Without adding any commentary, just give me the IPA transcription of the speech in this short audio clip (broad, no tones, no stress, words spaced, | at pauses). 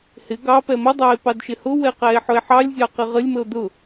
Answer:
hɪ ɡɑ pɛmədˤæe̯ pɑdʃɪhʊwɛ qæe̯ħʊe̯ħɑlʲzʲɑ qɪʁəlʲməo̯ dʊ